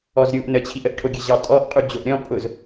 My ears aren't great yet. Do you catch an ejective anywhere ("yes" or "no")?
yes